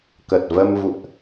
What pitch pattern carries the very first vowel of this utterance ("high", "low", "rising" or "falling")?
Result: low